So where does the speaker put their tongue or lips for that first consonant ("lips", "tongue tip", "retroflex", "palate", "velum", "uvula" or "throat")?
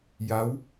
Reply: palate